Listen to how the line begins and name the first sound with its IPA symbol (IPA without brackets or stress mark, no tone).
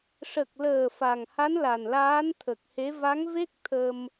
ʂ